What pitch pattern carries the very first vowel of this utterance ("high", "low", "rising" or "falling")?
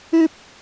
high